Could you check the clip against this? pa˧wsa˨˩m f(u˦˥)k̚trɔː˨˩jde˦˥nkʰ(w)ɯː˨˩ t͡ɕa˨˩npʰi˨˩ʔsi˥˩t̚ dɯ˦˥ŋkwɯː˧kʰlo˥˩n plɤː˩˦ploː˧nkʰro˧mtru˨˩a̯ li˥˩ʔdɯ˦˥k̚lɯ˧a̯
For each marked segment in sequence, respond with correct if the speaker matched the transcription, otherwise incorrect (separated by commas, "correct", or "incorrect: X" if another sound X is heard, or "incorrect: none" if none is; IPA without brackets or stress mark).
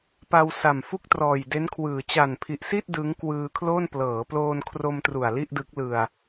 incorrect: u˥˩, correct